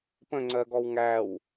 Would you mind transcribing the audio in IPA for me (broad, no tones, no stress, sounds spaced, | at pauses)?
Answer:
p ə̃ ŋ͡ǀ ɜ ɡ ɔ w ŋ æ w